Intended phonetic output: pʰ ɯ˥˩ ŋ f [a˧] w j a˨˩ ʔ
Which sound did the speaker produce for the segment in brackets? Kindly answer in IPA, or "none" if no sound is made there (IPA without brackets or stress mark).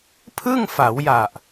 a˩˦